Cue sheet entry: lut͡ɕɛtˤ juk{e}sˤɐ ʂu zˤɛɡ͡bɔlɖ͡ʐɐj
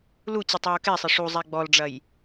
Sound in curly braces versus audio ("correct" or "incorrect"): incorrect